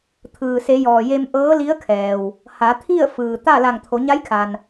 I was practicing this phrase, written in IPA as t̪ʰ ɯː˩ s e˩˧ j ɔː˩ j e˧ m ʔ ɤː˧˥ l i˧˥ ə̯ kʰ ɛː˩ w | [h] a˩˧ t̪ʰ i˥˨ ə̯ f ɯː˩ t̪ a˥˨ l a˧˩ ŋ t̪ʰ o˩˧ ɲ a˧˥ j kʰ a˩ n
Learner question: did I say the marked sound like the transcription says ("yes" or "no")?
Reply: yes